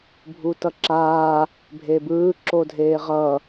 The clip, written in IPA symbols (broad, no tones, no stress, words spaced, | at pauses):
bʱutʌǁaː | bʱebɯː ǁodʱeːʁʌː